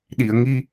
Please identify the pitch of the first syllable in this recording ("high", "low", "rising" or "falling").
low